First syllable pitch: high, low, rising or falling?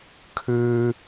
high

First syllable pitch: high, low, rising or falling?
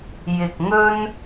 low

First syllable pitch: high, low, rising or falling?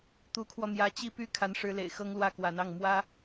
rising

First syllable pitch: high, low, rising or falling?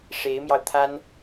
rising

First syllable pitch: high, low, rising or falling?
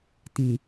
low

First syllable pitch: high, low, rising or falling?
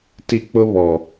high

